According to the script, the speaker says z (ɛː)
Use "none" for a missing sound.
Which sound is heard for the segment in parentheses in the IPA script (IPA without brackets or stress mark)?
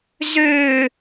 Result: øː